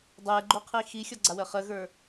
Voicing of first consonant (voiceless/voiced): voiced